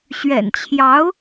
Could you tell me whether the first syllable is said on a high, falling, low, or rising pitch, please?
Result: low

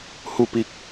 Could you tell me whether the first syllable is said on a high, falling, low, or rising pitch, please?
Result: falling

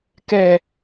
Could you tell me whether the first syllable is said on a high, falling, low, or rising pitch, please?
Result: low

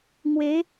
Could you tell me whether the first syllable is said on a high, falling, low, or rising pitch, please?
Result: rising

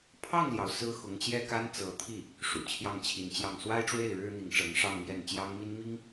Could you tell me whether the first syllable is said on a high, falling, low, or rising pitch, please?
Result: falling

